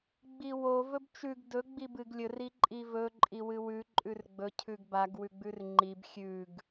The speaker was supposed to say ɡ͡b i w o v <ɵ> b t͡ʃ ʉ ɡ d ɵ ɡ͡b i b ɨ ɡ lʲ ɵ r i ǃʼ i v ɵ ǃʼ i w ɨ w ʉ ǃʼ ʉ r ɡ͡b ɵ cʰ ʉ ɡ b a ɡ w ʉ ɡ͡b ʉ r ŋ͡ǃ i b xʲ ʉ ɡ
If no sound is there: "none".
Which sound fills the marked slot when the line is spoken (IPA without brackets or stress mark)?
ɵ